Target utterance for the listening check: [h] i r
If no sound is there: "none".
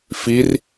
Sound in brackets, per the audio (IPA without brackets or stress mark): f